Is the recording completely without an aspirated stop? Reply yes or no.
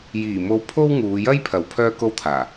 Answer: no